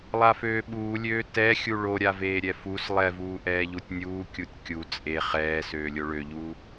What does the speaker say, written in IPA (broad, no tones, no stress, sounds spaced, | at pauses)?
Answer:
lˠ a f øː ɓ uː lʲ øː t ɛ xʲ u ɭ o ɾʲ a v eː ɾʲ ɛ f u s lˠ ɛ v uː ʔ ɛː ʎ u tʲ nʲ uː kʲ u tʲ kʲ u t͡sʼ e χ ɛː s øː lʲ o ɭ ø ʎ uː